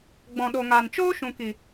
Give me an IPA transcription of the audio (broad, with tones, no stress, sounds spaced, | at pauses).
ɡ͡b ɔ̃˨ ɗ o˨ ŋ aː˨ n t͡ʃ oː˦ ʃ ũ˨ k i˨